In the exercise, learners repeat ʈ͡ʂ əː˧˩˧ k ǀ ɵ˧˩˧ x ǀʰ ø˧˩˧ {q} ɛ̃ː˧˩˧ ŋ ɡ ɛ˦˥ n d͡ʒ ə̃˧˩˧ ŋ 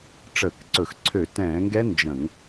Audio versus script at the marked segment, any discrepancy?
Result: yes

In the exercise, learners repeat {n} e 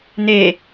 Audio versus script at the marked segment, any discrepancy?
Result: no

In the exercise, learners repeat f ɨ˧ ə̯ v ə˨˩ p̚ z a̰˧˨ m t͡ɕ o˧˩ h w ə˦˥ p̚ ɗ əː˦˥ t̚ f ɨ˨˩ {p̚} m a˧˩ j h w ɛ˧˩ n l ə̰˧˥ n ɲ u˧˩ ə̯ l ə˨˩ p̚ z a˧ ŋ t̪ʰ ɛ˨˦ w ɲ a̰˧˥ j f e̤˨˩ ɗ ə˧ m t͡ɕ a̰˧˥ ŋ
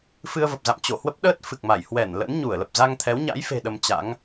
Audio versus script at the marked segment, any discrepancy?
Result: yes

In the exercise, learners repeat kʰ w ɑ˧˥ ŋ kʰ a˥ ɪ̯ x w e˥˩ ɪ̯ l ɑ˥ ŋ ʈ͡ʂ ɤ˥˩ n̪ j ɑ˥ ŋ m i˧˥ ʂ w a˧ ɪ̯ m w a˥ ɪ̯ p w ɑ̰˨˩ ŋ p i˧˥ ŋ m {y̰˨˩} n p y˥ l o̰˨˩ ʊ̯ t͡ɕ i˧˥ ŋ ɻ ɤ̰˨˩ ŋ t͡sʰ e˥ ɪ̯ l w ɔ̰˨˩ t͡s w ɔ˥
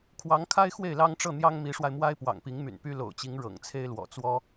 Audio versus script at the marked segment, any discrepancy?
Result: no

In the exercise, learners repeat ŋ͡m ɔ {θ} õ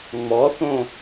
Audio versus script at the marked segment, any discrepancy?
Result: no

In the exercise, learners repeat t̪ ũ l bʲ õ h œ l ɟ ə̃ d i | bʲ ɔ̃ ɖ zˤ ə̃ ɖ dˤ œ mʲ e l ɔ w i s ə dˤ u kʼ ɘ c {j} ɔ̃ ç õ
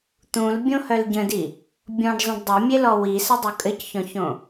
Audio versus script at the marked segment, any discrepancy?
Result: yes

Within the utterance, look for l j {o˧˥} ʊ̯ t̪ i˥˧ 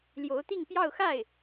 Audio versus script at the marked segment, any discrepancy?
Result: no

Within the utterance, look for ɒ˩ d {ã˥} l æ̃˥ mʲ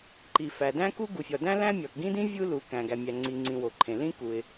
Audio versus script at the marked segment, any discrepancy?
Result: yes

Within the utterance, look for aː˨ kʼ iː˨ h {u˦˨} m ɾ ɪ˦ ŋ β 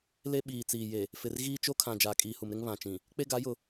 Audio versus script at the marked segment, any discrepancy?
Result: yes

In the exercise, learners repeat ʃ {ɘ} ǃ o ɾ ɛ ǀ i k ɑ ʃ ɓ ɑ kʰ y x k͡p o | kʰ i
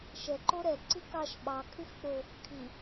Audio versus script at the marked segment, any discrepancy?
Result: yes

